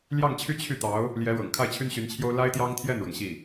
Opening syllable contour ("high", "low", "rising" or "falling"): falling